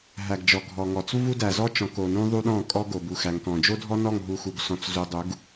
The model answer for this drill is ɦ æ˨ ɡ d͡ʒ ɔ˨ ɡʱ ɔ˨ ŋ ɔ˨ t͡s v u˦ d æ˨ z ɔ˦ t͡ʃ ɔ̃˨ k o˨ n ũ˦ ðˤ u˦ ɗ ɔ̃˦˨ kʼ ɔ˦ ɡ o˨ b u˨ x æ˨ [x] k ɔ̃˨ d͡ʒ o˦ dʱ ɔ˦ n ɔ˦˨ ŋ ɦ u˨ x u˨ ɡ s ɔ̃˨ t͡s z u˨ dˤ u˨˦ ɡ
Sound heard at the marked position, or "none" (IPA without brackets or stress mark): ŋ